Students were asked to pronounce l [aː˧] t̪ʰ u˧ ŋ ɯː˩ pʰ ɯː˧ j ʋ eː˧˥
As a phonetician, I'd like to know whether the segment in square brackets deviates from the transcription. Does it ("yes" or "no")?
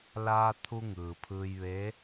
no